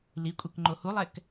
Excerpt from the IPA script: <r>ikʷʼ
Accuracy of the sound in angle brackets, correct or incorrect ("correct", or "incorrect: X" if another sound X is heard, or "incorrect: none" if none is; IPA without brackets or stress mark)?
incorrect: l